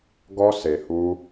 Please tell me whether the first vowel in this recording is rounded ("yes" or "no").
yes